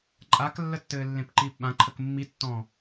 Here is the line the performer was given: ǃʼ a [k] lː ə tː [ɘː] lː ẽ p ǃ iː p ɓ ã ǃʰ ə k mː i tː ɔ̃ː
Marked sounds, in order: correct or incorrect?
correct, correct

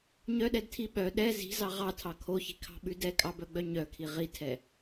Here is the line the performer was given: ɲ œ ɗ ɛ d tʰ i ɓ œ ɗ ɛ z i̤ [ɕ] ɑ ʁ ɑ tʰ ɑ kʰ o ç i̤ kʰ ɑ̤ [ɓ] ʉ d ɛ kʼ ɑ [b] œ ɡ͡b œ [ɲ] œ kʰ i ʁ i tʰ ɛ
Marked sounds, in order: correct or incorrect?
incorrect: z, correct, correct, correct

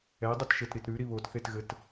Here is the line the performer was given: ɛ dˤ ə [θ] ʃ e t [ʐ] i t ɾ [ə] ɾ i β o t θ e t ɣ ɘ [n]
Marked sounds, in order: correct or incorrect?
incorrect: t, incorrect: ɾ, incorrect: ʉ, incorrect: t

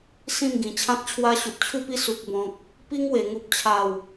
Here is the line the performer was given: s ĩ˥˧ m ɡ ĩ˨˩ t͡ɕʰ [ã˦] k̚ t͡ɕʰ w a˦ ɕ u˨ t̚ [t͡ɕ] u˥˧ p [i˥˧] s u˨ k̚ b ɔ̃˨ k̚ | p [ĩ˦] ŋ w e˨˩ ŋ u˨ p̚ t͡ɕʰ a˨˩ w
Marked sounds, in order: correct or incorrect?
correct, incorrect: t͡ɕʰ, incorrect: i˦, incorrect: i˦

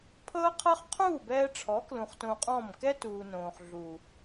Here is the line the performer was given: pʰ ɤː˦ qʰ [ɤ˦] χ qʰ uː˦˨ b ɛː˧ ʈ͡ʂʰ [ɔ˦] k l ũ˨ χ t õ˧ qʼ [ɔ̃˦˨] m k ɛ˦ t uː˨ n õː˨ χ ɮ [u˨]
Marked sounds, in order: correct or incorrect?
correct, incorrect: ɔ˨˦, correct, correct

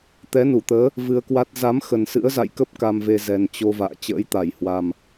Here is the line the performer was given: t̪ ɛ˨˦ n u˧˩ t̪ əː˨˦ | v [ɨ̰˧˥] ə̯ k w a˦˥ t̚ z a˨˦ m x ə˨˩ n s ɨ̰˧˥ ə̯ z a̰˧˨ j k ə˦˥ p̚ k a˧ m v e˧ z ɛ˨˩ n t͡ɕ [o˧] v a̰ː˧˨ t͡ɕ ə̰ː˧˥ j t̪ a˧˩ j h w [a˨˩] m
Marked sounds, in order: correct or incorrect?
incorrect: ɨ˧, correct, correct

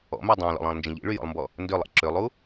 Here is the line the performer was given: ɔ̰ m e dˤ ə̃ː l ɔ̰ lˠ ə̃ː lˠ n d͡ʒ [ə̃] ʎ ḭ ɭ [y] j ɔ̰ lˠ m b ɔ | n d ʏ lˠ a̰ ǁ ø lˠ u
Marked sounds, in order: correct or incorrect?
correct, correct

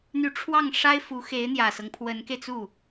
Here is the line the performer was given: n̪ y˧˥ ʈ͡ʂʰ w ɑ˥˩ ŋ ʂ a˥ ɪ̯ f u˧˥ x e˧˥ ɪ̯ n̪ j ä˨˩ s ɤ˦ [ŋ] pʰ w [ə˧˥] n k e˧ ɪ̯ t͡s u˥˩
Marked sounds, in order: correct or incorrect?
correct, correct

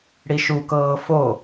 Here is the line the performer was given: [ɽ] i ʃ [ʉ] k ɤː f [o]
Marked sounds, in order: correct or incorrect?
correct, incorrect: u, correct

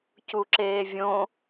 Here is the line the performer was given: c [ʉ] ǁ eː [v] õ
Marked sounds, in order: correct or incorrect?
incorrect: u, incorrect: vʲ

